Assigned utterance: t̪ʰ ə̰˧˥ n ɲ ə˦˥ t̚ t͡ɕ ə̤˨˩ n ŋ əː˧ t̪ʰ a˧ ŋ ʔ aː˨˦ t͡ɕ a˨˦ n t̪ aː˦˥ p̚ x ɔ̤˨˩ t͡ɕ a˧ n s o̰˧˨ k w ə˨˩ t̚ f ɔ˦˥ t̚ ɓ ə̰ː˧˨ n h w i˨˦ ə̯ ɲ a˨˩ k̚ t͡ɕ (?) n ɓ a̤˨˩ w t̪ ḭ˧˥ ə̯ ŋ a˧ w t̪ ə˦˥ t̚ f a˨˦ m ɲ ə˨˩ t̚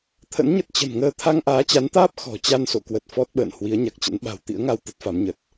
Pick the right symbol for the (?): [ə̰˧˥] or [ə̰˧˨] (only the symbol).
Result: ə̰˧˥